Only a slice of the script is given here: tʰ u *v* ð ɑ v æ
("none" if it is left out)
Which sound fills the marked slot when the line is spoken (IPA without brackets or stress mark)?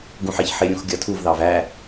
v